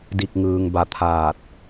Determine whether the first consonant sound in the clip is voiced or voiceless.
voiced